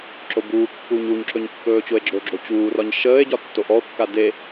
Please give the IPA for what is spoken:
ǁ o b uː kː uː ɲ u ɲ ǁ ɵ ɲ kː ɵː t͡ɕ o e̯ ɡ͡ǁ o ɡ͡ǁ o t͡ɕ uː r ɒ ɲ ʃ əː e̯ ɟ ɒ tː o ʔ ɔ o̯ kː a d e

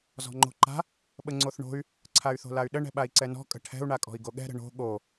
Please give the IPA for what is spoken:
z ɔ̤ ŋ͡ǃ o̤ ǃ a̤ | ɓ ə ŋ͡ǀ o θ ɳ o̤ y̯ | ǀʰ a y̯ θ o̤ l a y̯ ɗ ə ɳ ɛ̤ ɓ a i̯ ǀ ɛ n ɔ̤ kʼ ə̤ ʈʰ ɛ̤ u̯ ɳ a kʼ ɔ̤ i̯ ɡ o ɠ ɛ̤ ɾ ə̤ ɳ o̤ ɠ o

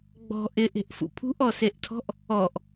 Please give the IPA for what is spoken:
ɡ͡b ɔ̤ ʔ ɪ ʔ e̤ ʔ f ṵ pʰ ṳ ʔ ɔ s e ʔ tʰ ɔ̤ ʔ | ɔ ʔ

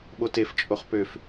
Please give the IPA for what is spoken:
ɓ o t e f t͡ʃʼ o χ p ø f

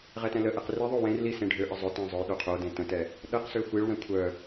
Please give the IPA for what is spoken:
ʁ ɛ t ɛ̃ l ə ʔ ɛ q r i ðˤ o w ẽ r l i s ẽ ɖʱ ø ʔ ə zˤ ʊ t ɛ̃ zˤ ʊ j ɗ o qʰ o d ẽ t ə̃ t ɛ | ɗ ə q s ø xʷ i ɭ w ɛ̃ kʷʰ œ

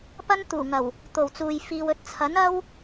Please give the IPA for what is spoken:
p ɐ˥ n t̪ uː˨˩ ŋ ɐ˨˩ w | t̪ o˨˩ w t͡s uː˨ j f iː˨ w ɵ˨ t̚ t͡sʰ ɐ˨˥ n ɐ˥ w

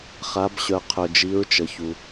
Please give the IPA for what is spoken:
χ a˩˧ b ɕ œ˩ qʰ œ˩ d͡ʒ i˩˧ ɹ t͡ʃ ə˩ ç u˩

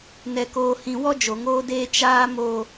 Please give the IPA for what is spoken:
n ɛ˨ k oː˨ h ĩ˨ w ɔ˦ d͡ʒ o˨ ŋ oː˦ d eː˦ t͡ʃ aː˦ m o˦

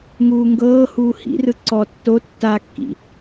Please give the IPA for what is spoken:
ŋ uː ŋ ɡ ɤː h uː h ḭ r ɯ ǀ ɔ tː o tː a kː ḭ

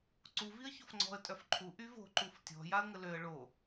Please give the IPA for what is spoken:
ǀ u v i ə̯ ç o f ŋ͡ǀ ɔ̤ ə̯ tʼ œ f ǃʰ u ʔ y v o̤ ǃ u f tʲ ɔ̤ j a ə̯ ŋ ə l ø ə̯ ɭ o

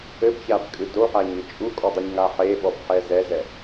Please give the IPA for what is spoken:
ɘ b ç a b kʼ ɨ d o ħ a ɲ ɨ t͡ʃʼ u kʼ ɔ dˤ u ɲ ŋ a ħ e ɓ ɔ b ħ ɛ z ɛ z ɛ

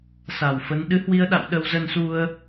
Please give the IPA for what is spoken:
s a˧˩ w f ə˨˦ n ɗ ɨ˨˦ h w i˧ ə̯ ɗ a̰˧˨ w ɗ ə˧ w z ə˧ n s u˧ ə̯

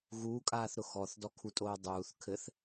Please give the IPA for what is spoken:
ɣ uː kʼ aː θ ɾ ʊ x ɔ θ d ɔ kʰ u tʼ oː dˤ uː θ kʰ ɘ θ

